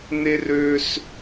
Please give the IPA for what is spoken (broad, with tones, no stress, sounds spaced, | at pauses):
n e˦ r ø˧ s